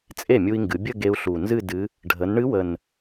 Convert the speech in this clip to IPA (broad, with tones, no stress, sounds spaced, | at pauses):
t͡sʼ e˥˩ mʲ u˧ i̯ ŋ ɡ ɨ˩˧ bʲ ə˥˧ ɡ e˧ u̯ ɬ u˨˩ n z ɨ˥˧ d ɨ˧˥ | ɖʱ ə˩˧ n ɳ ɨ˧˥ w ə˨˩ n